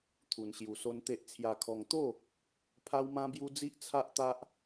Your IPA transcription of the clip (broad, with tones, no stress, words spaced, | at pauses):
t̪ʰu˧nɕju˧so˦nt̪e˦ʔ t͡sʰja˧kʰɔ˧ŋ t̪o˥˧ | pʰa˦wmã˦bju˦d͡zi˦ʔ t͡sʰa˦ʔt̪a˦ʔ